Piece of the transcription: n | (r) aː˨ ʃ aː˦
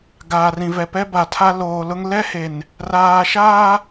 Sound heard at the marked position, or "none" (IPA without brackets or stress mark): r